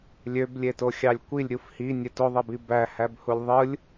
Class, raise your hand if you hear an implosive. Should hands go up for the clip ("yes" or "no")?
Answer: no